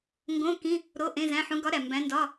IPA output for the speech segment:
ŋɡõ˧˥˧kĩ˧˥˧ | ɾo˧˥˧ʔẽ˧˥˧ zæ̃˧˥˧ħũ˧˥ ɡɒ˧˥ ɾæ˨mbæ̃˧˥ndɒ˧˥˧

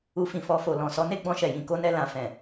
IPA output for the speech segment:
u˧fĩ˨fɔ˧fo˨ lɔ̃˨sɔ˨˦ ne˦ɡ͡bɔ̃˧ʃɛ˨ jĩ˧ko˦nɛ˧lã˨ fɛ̃˨

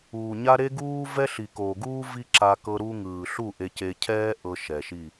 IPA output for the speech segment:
uː˨ɲa˦ ɾe˦ɡuː˦ vɛ˦ɬi˨ko˨ɡuː˦ vi˦ǁa˧ kɤ˧ɾu˧ŋɯː˨ɬu˦˨ ʔe˧ce˧ cʰɛː˦ ʔɤ˧ ʃɛ˨ʃi˦˨

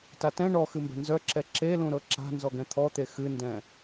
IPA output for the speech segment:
tatɛ̃ ɳɔ xɨmbɛ̤nzœǁɛ ǁelũɾɤ ǁa̤ nzɔɡɛ̃t̪ʰɔt̪e xɨndɛ̃

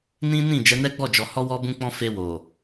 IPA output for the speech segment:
nĩ˦nĩ˦˨ d͡ʒɛ˨˦nɛ˦ɡ͡bɔ˦˨ d͡ʒɔ˨hɔ˧wɔ˧ bũ˧k͡pɔ̃˧ fe˧wo˨

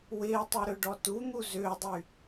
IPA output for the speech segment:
wɪːtˤu ɾʏɖɔtun̪u zʏːdˤy

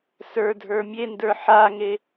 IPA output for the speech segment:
sə˞dʱə˞ mʲendə˞ ħaŋe

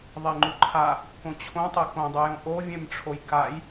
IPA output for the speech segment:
ðˤeŋ͡ǃuǃʰa | kõt͡ɕʰõtˤe kõdˤujõ ʔovʲẽmʈ͡ʂʰoj kaj

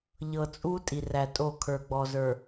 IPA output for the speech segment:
ʎɤ˨t͡sʼu˦ tʼi˨ræ˨tʼo˦˨kʰə˞˨ ɡ͡bɔ˨zə˞˨

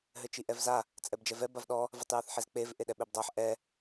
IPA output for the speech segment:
ɦɘt͡ʃiʔɛvza | t͡sʼɛbd͡ʒɛvɛ bavɗɔ | vɛtˤjaθħezk͡pev ʔeɗɛɓebdˤaħ ʔɛ

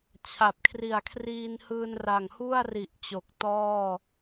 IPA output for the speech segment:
t͡ɕʰa˨˩p̚kʰri˨˩a̯kʰriː˧nhɯː˧n ra˨˩ŋhu˥˩a̯ri˨˩ʔ t͡ɕo˨˩k̚tɔː˥˩

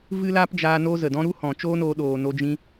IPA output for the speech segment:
vɨ˦ laː˦pd͡ʒaː˧ no˧ zə˨dɔ̃˧ ɾu˦hɔ̃˨t͡ʃoː˦noː˧ ɗoː˨ no˧d͡ʒĩ˧

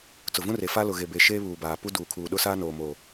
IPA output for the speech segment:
t͡sʊ˨vũ˦re˨ fa˦lʊ˨ɣe˨ be˨ʃeː˦ βuː˨baː˨ pu˦duː˨kʰuː˨ ɗʊ˦saː˦noː˨ moː˨

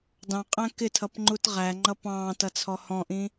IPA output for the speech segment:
dɑ̃qʼæ̃ kɪtʰʌpŋ͡ǃut ʁæŋ͡ǃʌ pɑ̃ːtʌt͡sʰɔ hɔ̃ʔĩ

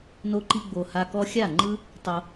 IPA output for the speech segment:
no˧ǃi˧ɡ͡bo˨ ha˧kɔ˦ xʲa˦˨ŋ͡ǃɯ˦ | tˤo˧

